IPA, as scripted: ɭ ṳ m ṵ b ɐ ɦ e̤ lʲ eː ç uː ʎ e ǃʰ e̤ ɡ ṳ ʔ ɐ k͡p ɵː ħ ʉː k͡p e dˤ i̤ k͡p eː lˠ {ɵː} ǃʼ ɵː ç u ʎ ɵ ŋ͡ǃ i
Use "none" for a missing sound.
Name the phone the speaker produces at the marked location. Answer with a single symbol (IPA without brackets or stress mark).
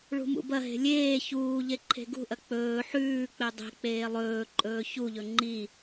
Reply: ɵː